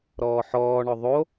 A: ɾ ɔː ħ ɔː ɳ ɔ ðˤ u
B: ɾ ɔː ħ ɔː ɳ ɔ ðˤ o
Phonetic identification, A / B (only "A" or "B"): B